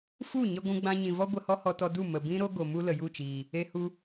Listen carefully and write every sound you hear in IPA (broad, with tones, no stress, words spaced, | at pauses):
fu˦˨ɲə˧ ɡʷũ˧ɡ͡bã˧ɲĩ˨ vɔ˦ ɡʷə˧hɔ˦hɔ˧tɔ˧ du˦˨ mə˨ bĩ˦ɾo˦ɡo˨ mu˦lə˨ju˦˨t͡ʃiː˨ | e˧hu˧